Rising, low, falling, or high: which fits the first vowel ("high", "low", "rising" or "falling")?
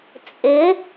rising